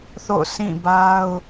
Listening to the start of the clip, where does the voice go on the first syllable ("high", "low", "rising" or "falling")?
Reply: falling